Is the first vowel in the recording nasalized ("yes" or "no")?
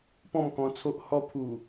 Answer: yes